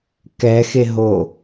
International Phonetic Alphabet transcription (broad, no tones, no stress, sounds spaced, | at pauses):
k ɛ x e ɦ o